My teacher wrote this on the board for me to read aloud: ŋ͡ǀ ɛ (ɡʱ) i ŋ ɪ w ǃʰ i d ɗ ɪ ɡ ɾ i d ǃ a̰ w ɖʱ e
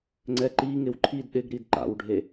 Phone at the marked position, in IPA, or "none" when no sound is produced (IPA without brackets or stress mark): ǃ